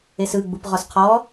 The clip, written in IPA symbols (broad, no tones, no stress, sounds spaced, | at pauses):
e s ɯ ɡ͡b u p ʁ ɔ s qʰ ɔː